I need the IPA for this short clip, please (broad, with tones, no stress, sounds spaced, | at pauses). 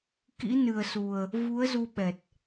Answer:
k ḭ˧˥ n ɨ˨˩ ə̯ s u˨˩ ə̯ | v u˨˦ ə̯ z u˧ ɓ ɛ˨˩ t̚